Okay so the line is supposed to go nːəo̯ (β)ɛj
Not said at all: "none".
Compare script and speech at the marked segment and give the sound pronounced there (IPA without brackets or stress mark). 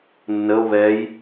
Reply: β